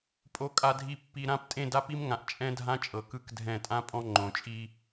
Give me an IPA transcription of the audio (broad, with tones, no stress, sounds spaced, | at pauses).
pʼ o˨ kʼ a˨ dʱ i˨ pː i˨ ɾ ã˦˨ p tʼ ẽ˦˨ d a˦ p i˦ m ŋ ã˨ ʔ t͡ʃʼ ɛ̃˦ dʱ ã˦ t͡ʃʼ ɤ˨ k ɯ˦ k dʱ ɛ̃˦˨ tʼ ã˦ pʼ ɔ̃˦ ŋ͡ǃ õ˨ t͡ʃʼ i˦